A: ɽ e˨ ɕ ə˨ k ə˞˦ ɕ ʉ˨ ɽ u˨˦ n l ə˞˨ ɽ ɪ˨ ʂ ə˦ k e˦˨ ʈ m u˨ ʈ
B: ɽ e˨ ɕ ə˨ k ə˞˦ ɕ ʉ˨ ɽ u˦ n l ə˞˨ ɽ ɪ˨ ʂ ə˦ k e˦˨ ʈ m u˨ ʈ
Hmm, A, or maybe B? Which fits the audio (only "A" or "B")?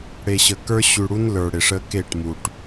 B